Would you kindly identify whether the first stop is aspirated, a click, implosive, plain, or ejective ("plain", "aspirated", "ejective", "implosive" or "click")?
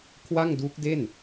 aspirated